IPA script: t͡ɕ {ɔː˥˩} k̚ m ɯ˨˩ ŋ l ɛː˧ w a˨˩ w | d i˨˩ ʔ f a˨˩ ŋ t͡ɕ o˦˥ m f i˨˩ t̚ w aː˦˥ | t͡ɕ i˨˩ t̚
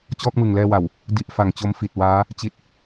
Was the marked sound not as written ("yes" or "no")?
no